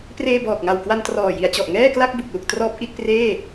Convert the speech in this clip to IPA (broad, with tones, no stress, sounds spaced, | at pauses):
p r eː˧ b ɔː˨˩ k̚ ŋ a˨˩ w k w a˧ n t r ɔː˨˩ j i˩˦ a̯ t͡ɕ ɔ˨˩ ʔ ŋ ɛː˥˩ k l a˥˩ k̚ b u˨˩ k̚ l u˨˩ k̚ t r ɔː˦˥ p̚ ʔ i˥˩ t̚ p r eː˥˩